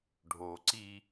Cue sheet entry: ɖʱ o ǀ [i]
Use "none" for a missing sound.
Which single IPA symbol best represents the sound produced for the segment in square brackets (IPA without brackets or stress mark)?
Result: i